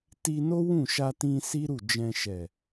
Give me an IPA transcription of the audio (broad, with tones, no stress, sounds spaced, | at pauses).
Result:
t i˧ n o˦ w ũ˦˨ ʃ a˧ t ĩ˧ s i˦ ɾ u˦˨ d͡ʒ ɛ̃˧ ʃ ɛ˨